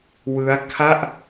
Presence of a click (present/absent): absent